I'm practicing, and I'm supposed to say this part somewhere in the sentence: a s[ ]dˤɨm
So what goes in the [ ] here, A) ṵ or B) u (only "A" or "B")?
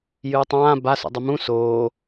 A